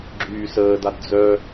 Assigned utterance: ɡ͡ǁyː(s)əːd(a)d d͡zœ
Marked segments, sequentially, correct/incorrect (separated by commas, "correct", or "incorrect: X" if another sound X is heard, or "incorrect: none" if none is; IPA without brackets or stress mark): correct, correct